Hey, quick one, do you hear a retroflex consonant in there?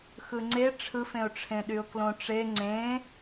yes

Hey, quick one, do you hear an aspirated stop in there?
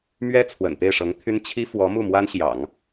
yes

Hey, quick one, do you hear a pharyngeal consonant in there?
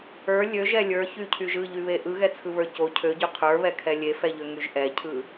no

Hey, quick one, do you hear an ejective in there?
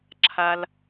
no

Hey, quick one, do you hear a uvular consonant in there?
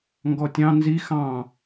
no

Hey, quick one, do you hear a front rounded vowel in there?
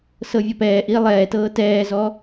no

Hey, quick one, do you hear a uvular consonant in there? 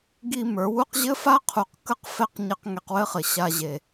yes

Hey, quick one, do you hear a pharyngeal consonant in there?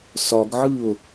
yes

